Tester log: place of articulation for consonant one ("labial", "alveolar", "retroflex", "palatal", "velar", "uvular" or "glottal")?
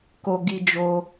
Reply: velar